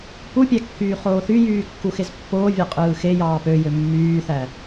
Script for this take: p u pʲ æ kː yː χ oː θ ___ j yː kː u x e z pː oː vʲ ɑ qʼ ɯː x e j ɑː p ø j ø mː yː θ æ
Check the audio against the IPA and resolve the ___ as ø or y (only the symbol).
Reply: y